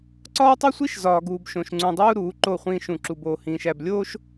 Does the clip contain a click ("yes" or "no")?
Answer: yes